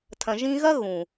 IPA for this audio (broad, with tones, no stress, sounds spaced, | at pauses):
tʰ ɐ̃˨ ʒ ĩ˧ ɣ ɐ˦ ɣ ũ˨